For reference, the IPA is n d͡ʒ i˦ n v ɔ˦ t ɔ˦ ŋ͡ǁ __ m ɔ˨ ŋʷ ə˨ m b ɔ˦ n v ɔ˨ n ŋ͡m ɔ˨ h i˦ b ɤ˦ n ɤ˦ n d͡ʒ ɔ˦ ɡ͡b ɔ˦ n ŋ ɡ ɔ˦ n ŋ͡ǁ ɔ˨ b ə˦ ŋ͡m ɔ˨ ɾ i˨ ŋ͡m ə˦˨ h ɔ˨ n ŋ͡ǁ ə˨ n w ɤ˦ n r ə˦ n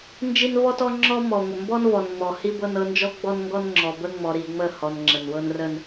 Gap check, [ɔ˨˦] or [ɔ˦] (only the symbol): ɔ˦